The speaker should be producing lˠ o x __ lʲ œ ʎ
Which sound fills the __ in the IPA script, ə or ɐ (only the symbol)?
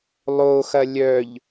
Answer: ɐ